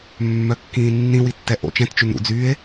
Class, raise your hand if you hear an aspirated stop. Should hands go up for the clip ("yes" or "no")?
no